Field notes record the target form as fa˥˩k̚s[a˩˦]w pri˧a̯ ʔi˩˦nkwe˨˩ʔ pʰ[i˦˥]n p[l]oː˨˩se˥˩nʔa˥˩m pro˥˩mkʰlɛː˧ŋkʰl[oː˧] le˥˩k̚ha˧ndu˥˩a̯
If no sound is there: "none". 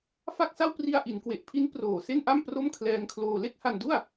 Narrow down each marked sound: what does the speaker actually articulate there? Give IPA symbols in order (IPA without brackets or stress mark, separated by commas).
a˥˩, i˦˥, r, oː˧